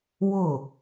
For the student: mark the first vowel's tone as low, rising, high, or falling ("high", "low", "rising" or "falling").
falling